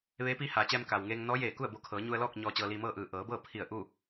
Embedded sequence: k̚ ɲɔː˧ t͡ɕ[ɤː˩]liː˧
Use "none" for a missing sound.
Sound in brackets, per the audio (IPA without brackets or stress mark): ɤː˧